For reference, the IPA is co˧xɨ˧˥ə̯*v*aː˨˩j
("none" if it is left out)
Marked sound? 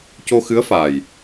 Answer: f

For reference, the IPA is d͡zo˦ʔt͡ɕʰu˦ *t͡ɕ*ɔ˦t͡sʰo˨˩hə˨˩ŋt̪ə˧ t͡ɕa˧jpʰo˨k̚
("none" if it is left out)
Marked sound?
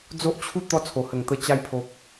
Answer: t̪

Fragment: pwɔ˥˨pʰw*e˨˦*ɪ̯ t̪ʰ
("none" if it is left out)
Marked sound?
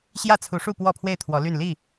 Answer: e˥˨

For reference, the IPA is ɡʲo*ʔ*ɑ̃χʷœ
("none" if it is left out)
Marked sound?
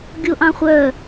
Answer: ʔ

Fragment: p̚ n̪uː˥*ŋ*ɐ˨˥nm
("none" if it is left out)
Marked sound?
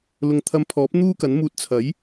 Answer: k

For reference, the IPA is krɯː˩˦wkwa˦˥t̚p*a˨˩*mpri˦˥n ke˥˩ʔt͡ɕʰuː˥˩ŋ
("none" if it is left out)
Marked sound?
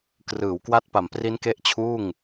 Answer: a˨˩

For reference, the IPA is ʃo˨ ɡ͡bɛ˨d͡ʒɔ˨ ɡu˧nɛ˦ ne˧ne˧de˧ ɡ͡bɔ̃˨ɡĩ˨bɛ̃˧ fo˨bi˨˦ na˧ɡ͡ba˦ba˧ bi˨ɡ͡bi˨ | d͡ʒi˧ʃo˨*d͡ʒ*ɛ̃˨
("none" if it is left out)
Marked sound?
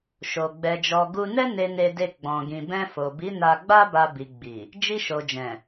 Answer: d͡ʒ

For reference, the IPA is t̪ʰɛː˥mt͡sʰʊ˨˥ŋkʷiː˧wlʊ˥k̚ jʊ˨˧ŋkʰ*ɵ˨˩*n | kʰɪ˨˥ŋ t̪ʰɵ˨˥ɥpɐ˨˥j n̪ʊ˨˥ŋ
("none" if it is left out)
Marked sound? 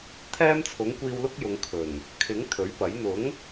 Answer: ɵ˨˩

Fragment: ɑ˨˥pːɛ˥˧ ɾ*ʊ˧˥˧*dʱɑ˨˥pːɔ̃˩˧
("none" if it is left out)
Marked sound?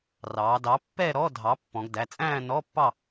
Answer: ɔ˧˥˧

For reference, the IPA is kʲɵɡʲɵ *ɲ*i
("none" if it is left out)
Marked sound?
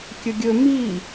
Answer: m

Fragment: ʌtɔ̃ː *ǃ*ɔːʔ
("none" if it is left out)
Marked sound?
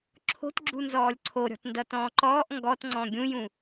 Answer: ǃ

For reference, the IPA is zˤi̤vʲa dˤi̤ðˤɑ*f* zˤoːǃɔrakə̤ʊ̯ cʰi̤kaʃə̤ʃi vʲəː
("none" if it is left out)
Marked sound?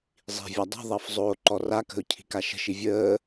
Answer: f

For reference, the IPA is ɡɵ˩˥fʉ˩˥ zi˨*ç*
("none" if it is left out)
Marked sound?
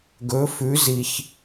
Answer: ç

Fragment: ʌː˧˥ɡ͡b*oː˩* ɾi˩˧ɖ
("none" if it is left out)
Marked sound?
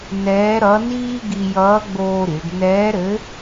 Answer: oː˧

